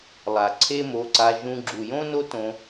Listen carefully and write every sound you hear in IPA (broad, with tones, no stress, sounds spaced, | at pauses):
lˠ a˨ ǀʰ e˦ m o˧ ǀ a˧ ʒ ũ˧ ɡ͡ǁ u˨ j õ˦ n o˦ t õ˧